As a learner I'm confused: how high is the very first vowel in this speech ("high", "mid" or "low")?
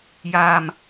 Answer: low